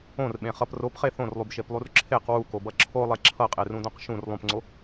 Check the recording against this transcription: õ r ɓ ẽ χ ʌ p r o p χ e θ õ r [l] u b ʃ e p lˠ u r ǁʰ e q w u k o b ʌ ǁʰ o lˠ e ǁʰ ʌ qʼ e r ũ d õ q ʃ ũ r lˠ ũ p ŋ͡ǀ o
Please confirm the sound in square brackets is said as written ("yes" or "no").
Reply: no